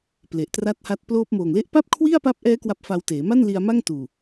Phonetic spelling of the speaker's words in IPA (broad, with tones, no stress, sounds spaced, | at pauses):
p l e˨˩ ʔ t r a˥˩ t̚ h aː˥˩ t̚ p l oː˦˥ p̚ m oː˨˩ ŋ l e˥˩ ʔ p a˥˩ p̚ kʰ w i˥˩ a̯ p a˦˥ p̚ ʔ ɛː˦˥ k w a˦˥ p̚ f a˧ w t eː˩˦ m a˥˩ n l i˧ a̯ m a˥˩ ŋ t uː˨˩